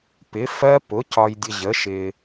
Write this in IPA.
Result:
p ɪ˩˥ f ɜ˦˥ p ʊ˩˥ c ɒ˨ j dʲ ə˨ ʑ ə˩˥ ʃ ɪ˨

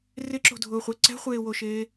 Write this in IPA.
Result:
r ɪ ǁ o̤ dʱ ʊː χʷ ɛ ǀ ɛ̤ χʷ eː w o ʃ eː

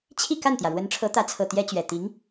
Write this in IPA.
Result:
t͡ɕʰ i˥˧ k a˥˩ n t̪ j ä˩ ɻ w ə˧˥ n ʈ͡ʂʰ ɤ˧˥ t̪ ä˧˥ t͡sʰ ɤ˨˩ t̪ j ɛ˥ t͡ɕ ɥ ɛ˨˩ t̪ i˧˥ ŋ

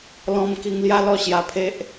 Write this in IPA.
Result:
l ɔ̃˧ m k i˧ ŋ l j a˦ l ɔ˥˧ ɕ j a˧ pʰ e˦ ʔ

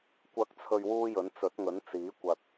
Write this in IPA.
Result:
kʷ ɐ˨˥ k̚ t͡sʰ ɵ˨ ɥ w uː˥ j ɵ˨˥ n t͡s ɵ˨˥ t̚ ŋ ɵ˨˥ n t͡s iː˨˥ kʷ ɐ˧ t̚

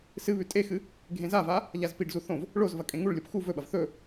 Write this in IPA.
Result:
s ɨ β ʉ tʼ e x ɨ | ɡʱ ẽ z a v a | ʎ a z p i ɖ z u θ õ v | ɭ o z v ɐ kʼ ẽ ŋ u ɭ lʲ o p x u v ɵ ɓ ɐ v θ ɵ

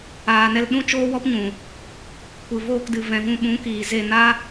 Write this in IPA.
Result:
aː˨ n ɛ˧ l ɗ ũ˦ t͡ʃ oː˦ w ɔ˦ p ɲ ũ˨ | kʷ ɨ˨ v oː˧ k d ɨ˨ v ɛ̃˨ v ũ˧ ɓ ũ˨˦ k iː˨ z e˧ n a˦

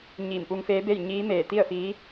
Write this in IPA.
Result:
ɲ iː˧˩ m p u˧ ŋ f eː˧˥ b e˥˨ j ɲ iː˧˥ m eː˧˩ t̪ i˥˨ ə̯ f iː˧˥

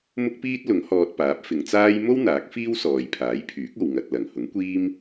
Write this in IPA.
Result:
m ʊ˥ k̚ p iː˥ t̚ l ʊ˨˥ ŋ h ɔː˧ t̚ p aː˨˥ p̚ f ɪ˨˧ ŋ t͡s aː˥ j m o˥ w n̪ aː˨˥ k̚ f iː˥ w s ɔː˨ j pʰ aː˨˥ j pʰ yː˨˥ k̚ o˨ w ŋ ɐ˨ t̚ l ɐ˨˩ ŋ h ʊ˨˥ ŋ kʷ iː˥ m

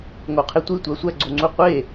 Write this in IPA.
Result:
ŋ o qʰ e tʷ i tʷ æ sʷ æ ɡ͡ǀ o ŋ͡ǀ u qʷ e

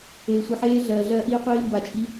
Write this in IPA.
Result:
eː˧ sʷ i˧ ħ eː˦˥ ɮ ɜː˧ ɮ ɜː˦˥ ʔ iː˦˥ qʷ iː˦˥ m b a˧ t͡ʃʼ i˦˥

